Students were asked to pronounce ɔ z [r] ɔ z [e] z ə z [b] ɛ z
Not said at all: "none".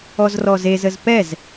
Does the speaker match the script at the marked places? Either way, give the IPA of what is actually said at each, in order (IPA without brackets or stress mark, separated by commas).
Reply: r, e, p